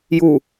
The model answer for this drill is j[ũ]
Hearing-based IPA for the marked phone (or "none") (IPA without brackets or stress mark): u